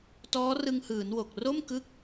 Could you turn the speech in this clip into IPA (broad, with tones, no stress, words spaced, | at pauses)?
tɔː˦˥rɯ˧ŋhɯː˩˦nwo˨˩k̚ ro˥˩mkɯ˦˥k̚